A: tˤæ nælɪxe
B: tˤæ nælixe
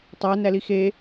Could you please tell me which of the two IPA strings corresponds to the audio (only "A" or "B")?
B